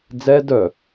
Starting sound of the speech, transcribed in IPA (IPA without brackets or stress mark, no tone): d͡z